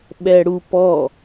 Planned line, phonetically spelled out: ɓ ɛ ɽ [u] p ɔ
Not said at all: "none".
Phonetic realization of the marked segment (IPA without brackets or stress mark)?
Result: u